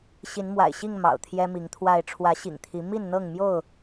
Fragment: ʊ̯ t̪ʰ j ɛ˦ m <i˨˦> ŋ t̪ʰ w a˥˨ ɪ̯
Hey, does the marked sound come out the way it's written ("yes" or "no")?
yes